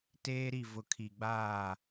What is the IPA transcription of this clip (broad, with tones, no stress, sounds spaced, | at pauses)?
t eː˦ ɾ i˦˨ v ʊ˨ kʰ i˨ ɡ͡b aː˦˨